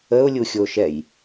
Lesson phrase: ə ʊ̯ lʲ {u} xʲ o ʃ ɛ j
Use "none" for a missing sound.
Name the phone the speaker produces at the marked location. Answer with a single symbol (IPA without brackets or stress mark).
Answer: u